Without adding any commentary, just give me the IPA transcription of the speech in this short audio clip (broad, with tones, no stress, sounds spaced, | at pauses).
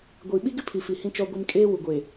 ɡʷ i˨ ɓ i˦ ɡ ɪ˦ pʰ i˨ f i˨ h ĩ˨ t͡ʃ ɔ˨ ɡʷ i˨ m kʼ eː˦ w u˨ ɡʷ eː˨